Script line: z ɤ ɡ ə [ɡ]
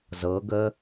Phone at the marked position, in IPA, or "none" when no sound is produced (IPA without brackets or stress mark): none